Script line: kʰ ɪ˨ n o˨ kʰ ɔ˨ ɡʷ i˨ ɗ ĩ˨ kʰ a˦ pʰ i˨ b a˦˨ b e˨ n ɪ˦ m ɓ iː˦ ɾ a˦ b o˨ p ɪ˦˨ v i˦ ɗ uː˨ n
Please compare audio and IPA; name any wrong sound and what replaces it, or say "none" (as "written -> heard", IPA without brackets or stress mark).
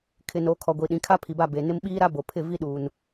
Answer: p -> pʰ